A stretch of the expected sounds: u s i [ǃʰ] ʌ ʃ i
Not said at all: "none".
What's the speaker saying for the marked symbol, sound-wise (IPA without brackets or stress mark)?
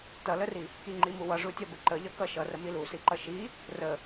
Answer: ǃ